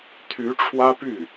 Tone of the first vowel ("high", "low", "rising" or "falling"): rising